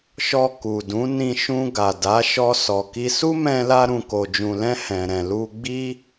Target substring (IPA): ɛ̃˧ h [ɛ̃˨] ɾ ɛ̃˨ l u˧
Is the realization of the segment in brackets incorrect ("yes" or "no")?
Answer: no